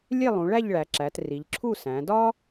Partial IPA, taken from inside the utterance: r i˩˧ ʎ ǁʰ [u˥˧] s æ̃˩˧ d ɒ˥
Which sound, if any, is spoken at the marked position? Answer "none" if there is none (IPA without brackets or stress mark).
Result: u˥˧